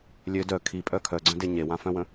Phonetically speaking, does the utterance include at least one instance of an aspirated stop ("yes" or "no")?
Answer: yes